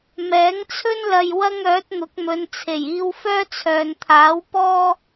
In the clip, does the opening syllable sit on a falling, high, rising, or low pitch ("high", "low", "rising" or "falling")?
rising